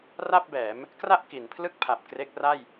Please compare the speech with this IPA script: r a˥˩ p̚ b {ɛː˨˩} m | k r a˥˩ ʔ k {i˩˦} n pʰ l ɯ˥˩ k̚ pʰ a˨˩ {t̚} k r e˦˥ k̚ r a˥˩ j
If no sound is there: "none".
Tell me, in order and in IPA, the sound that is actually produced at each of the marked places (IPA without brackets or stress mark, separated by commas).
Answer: ɛː˩˦, i˩˦, p̚